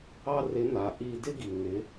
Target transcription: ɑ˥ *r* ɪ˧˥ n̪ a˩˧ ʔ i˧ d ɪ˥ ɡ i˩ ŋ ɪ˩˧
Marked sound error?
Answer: no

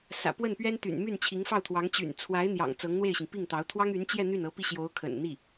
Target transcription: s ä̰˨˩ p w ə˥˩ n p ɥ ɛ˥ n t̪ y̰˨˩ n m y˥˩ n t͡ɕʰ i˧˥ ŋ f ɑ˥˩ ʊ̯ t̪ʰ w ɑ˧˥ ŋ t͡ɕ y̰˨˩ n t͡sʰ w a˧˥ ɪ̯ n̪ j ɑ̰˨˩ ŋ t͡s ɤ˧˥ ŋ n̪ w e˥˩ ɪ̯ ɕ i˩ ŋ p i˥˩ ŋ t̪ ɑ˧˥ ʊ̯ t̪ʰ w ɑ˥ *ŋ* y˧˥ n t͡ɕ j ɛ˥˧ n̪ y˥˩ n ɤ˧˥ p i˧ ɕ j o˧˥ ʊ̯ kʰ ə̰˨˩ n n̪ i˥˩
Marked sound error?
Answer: no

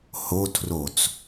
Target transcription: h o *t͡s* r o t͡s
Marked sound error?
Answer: yes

